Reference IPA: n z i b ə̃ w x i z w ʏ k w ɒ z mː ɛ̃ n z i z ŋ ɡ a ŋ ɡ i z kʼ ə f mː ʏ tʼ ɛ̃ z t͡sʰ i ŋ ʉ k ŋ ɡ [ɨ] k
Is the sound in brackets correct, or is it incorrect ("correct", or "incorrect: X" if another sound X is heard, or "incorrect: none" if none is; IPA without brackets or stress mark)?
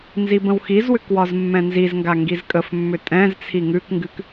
correct